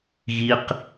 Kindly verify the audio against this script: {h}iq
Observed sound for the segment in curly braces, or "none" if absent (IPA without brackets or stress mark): ɣ